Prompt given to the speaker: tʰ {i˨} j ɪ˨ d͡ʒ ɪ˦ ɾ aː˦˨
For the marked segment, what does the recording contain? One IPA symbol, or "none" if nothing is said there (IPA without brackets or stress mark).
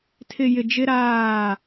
ɪ˨